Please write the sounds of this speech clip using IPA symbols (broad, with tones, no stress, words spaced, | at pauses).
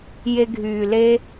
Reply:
je˧ɡʱyː˨le˦